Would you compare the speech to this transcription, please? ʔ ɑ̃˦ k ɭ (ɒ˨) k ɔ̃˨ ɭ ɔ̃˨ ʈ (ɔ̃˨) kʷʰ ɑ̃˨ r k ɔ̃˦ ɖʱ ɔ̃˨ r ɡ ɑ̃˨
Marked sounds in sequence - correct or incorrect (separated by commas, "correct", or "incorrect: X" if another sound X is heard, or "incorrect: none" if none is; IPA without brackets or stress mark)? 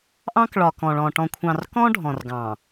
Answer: correct, correct